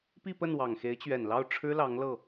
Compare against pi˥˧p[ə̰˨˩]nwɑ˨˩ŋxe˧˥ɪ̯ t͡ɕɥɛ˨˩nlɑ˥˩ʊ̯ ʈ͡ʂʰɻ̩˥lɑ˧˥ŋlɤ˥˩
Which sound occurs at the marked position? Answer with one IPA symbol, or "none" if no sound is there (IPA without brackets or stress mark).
ə˥˩